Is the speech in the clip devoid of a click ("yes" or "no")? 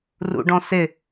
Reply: yes